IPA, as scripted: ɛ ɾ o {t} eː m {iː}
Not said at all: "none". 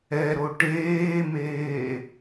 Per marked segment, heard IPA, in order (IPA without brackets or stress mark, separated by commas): ʈ, eː